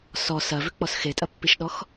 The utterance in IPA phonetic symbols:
s ɔ s ɐ v ʏ k͡p ɔ s x e tʼ ɐ pː i ʃ ɗ ɔ x

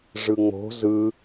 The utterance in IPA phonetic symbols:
ʐ ɯ ŋ͡m o̤ z ɯ

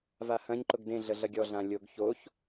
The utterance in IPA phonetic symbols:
v a h ɐ̃ ɲ ǃ ʊ ɡ d ẽ ɮ ə ɮ ɐ ɡʲ ɔ ɮ ã lʲ o ɡ ç o ç

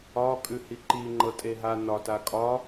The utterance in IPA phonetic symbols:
ɒ kʼ ʉ h i ǃ i ŋ͡ǃ ɤ tʼ e ɦ a n ɒ t a kʼ ɒ

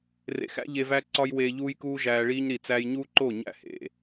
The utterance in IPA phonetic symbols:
r ḛ˨ x æ̰˦ ʎ e˧ v æ˦ ǀ ɒ˦ j w eː˧ ʎ uː˧ j k uː˧ ʒ æː˧ ɭ iː˦ ɲ ɾ i˨ t͡s æː˧ j ɲ uː˦ ǃ o˦˨ ɲ æ̰˦˨ h ḛ˨

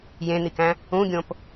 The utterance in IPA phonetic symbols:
j ẽ n̪ i k æ̃ | ũ ɡʲ õ p

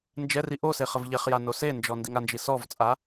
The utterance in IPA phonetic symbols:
n d͡ʒ ɛ r i ʔ o s e χ ə v ʎ ɛ χ j a n o s e n d͡ʒ ɔ n d i ŋ a n d͡ʒ i s ɔ v t͡sʼ a

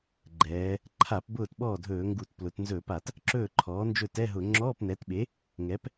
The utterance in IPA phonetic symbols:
ɡ͡ǃ ɛː˩˧ | ǃʰ a˧˩˧ p b ʊː˥˩ t ɓ ɔː˥˩ dʱ ɵː˧˩˧ ŋ ɡ u˧˩˧ t p l ʊ˩˧ t n z ɵ˧˩˧ p a˧˩˧ t | ǁ ɵː˥˩ ǃʰ ɔː˩˥ n d͡ʒ ɵ˥˩ t ɛ˧˥˧ ɦ ʊ˧˩˧ ŋ͡ǁ ɔː˧˥˧ p n ɛ˩˥ t ɓ e˩˥ | ŋ ɛ˩˥ p

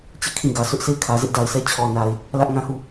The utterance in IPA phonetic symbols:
t͡ɕ e˦˨ kʰ ĩ˦˨ ɡ ä˨ sʰ ʊ˦ ʔ sʰ e˦˨ ɪ̯ kʰ ä˨ z ɪ˦ ʔ d a˨ ɪ̯ s ɛ˦ t͡ɕʰ ɔ˨ n a˨ ɪ̯ | l ä˦ ʔ ŋ ã˦ h u˦˨

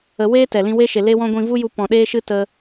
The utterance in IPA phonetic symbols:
ə˧ w eː˦ t ɛ˨ l ĩ˧ w e˦ ʃ e˨ l e˧ w ɔ̃˧ ɡʷ ĩ˧ v u˦ j u˧ p ɔ̃˨ ɗ eː˦ ʃ ɨ˦ t ə˧

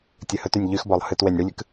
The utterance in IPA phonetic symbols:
tʲ ɨ h ɵ t y nʲ ʎ y x b ɔ lˠ h ɨ t w e nʲ ɽ ɨ lʲ ɨ k

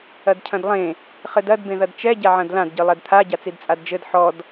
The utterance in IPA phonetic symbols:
ɐ d cʰ ɐ̃ d lˠ ẽ | χ ɘ d ɐ d b ẽ ð ɐ d t͡ʃ ɛ ɟ a ʕ ɐ̃ d l ã d ɟ ɨ lˠ ɛ d t̪ʰ a ɟ a t͡s i d t͡sʼ a d d͡ʒ ɘ d ħ ɔ d

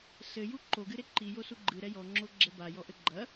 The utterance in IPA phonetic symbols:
s ɘ j u ǃ o ɡ ɨ ɾ e ǃ i j o s u ɡ͡ǃ ɨ ɾ ɛ j ɔ ŋ͡ǁ o ɡ͡ǁ ɛ b a j ɔ ʔ ɘ ɡ͡ǃ ɐ

